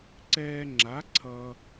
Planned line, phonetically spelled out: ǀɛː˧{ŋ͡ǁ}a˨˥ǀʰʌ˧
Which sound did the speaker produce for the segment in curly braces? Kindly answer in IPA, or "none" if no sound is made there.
ŋ͡ǁ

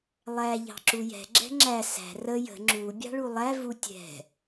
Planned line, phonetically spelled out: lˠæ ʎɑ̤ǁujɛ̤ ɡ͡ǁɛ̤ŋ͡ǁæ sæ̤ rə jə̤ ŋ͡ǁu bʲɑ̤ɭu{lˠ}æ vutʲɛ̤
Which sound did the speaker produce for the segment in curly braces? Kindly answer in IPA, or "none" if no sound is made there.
lˠ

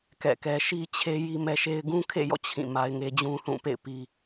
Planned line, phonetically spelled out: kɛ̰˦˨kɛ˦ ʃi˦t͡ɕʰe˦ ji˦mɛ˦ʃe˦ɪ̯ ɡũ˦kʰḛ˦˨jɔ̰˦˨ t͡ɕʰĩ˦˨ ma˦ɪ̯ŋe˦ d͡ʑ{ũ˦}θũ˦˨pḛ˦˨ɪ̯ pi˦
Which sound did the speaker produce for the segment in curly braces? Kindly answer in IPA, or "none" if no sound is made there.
ũ˦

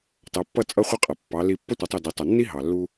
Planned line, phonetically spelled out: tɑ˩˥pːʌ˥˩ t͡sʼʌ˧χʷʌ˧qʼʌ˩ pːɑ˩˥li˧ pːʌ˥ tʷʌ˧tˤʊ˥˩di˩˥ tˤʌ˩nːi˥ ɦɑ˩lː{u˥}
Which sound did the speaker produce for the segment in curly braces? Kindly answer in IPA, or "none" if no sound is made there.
u˥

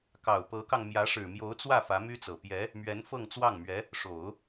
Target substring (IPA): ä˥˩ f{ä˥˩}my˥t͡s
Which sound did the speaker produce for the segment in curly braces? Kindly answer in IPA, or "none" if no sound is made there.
ä˧˥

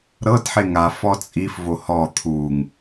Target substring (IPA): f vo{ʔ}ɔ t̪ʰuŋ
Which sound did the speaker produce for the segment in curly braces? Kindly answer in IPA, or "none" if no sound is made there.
h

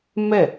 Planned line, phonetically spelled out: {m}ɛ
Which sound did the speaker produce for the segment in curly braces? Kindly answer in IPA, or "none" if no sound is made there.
m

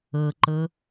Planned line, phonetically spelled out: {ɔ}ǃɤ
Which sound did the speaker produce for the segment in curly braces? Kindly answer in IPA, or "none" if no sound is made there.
ɤ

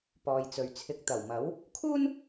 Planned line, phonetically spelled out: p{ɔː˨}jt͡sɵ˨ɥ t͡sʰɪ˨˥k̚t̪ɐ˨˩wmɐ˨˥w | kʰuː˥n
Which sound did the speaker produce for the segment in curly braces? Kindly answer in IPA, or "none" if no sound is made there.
ɔː˨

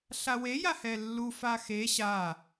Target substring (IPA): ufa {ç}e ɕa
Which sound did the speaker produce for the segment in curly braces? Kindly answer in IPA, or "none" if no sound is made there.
x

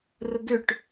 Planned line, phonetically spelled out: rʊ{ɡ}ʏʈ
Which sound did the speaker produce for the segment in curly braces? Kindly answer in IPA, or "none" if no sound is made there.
ɡ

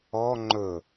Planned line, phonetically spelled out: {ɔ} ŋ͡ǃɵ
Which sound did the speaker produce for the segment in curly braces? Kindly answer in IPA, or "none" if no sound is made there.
ɔ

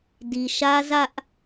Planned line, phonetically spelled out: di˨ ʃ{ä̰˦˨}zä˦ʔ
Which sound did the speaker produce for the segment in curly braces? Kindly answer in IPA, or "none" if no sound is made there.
ä˦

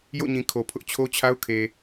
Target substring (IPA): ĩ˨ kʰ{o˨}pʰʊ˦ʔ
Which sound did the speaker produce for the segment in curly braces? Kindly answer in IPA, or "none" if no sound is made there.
o˨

